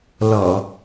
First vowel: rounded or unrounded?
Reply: rounded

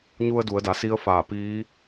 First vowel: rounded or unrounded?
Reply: rounded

